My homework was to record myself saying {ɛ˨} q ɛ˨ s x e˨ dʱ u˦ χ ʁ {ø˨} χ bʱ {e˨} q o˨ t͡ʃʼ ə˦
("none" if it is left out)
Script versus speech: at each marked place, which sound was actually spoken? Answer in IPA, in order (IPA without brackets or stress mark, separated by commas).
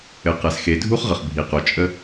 ɘ˨, ə˨, i˨